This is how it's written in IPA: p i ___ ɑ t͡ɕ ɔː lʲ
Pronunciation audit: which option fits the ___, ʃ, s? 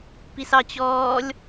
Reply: s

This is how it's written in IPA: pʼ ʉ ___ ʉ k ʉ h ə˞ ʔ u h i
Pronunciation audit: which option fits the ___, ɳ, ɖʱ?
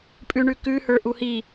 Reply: ɳ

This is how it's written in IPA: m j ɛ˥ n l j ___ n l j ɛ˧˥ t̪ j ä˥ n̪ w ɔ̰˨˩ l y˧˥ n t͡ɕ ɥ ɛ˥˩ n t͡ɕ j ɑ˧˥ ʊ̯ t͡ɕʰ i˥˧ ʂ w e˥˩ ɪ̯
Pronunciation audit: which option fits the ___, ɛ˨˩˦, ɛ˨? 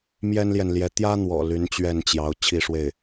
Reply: ɛ˨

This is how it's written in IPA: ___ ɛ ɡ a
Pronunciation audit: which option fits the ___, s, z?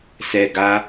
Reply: s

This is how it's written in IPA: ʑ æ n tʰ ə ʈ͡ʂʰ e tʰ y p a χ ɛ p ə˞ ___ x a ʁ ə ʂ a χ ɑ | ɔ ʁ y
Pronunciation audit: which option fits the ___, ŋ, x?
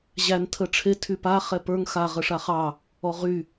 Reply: ŋ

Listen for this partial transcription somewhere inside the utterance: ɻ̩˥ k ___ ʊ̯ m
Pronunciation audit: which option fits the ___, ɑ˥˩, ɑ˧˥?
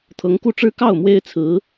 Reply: ɑ˥˩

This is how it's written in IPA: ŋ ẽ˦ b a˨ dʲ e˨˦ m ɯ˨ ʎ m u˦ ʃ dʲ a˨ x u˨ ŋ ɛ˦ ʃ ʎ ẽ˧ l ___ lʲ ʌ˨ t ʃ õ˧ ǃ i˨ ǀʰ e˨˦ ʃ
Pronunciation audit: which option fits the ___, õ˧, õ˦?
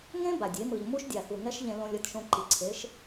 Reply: õ˧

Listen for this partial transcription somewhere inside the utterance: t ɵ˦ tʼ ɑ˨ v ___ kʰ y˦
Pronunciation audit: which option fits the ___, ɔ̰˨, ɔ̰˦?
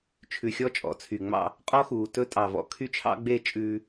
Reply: ɔ̰˨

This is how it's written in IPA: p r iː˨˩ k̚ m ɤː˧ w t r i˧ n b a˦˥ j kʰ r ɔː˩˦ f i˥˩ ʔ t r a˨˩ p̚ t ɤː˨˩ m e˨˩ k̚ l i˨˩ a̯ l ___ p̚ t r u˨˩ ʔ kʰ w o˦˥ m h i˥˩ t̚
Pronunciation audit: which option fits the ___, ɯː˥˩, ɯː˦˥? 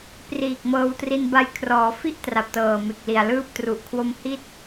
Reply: ɯː˦˥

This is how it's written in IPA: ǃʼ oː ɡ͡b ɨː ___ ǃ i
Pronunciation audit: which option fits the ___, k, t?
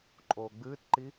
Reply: t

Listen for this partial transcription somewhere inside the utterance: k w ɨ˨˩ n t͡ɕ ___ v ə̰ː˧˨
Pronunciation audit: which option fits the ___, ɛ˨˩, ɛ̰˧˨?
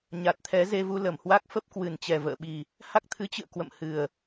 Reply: ɛ˨˩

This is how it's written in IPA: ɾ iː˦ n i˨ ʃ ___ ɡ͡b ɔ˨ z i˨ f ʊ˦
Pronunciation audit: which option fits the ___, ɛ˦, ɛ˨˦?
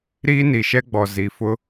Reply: ɛ˦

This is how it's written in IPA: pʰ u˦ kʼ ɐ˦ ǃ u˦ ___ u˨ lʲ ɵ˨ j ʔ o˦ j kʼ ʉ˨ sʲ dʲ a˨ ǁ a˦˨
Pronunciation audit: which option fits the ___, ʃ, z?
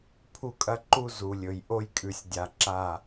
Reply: z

